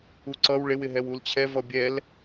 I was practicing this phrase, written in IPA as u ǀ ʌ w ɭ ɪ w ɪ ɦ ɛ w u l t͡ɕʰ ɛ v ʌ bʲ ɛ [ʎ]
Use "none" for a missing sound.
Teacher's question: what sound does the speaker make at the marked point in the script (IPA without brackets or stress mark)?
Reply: l